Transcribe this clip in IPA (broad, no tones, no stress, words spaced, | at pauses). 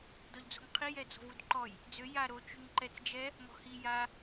dɔʎd͡zo̤ŋqʰi jɛd͡zɔ̤vudǃɔj | d͡zø ja ɾo t͡ʃyŋǃɛt͡s d͡ʒɛ | mɔ̤hi ja